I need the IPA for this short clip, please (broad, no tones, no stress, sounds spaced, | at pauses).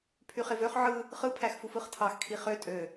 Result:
pʰ y χ e v ø χ ʕ ɯ | χ ɯ pʰ æ x f u f ɯ χ tʰ ɑ x kʰ i χ ø tʼ ø